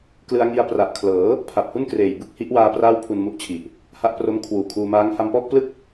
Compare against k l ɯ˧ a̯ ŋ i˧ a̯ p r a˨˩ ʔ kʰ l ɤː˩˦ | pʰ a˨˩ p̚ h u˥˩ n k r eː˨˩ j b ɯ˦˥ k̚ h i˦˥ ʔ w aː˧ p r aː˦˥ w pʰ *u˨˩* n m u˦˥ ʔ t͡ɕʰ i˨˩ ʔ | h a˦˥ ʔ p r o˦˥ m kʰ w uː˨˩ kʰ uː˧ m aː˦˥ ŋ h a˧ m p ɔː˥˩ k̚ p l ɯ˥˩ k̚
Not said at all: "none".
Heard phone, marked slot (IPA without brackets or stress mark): u˧